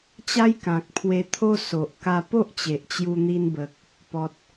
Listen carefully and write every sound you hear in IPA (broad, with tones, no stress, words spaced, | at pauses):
t͡ɕa˦jkã˨k̚pʰwe˧t̪ʰo˦ so˨ʔ ka˧po˦ʔt͡ɕe˨ʔ t͡ɕju˧n̪i˧nbə˨k̚ | pɔ˨t̚